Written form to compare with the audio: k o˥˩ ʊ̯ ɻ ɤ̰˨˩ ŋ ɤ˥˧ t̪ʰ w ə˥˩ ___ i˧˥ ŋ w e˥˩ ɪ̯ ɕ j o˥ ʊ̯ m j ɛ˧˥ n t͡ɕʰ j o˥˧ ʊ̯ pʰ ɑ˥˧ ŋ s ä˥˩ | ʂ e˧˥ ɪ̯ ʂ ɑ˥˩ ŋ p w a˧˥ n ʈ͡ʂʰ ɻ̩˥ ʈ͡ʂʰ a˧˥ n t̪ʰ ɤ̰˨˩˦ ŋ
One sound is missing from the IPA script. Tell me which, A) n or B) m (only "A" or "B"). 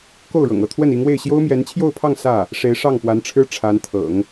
A